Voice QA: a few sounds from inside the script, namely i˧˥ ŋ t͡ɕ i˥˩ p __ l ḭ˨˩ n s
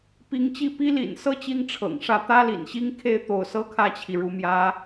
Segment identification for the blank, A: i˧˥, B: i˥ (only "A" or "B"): B